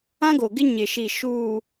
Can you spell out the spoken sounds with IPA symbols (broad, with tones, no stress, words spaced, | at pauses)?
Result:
ã˦ɡo˨ɡɪ˦ ɲɪ˨ʃi˨ ʃu˨